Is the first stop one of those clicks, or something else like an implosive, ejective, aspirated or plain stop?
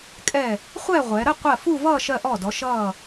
ejective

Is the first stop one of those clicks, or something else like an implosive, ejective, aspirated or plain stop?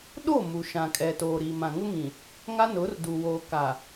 implosive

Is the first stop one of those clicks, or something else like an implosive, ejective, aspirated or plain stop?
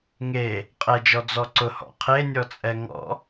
ejective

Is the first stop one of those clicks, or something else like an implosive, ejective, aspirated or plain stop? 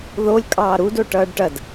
ejective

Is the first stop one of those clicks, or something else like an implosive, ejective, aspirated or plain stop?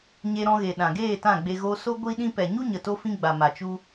implosive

